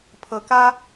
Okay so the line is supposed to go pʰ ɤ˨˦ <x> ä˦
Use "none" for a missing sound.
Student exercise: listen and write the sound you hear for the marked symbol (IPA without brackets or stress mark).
k